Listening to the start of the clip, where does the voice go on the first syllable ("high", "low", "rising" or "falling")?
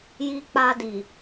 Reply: high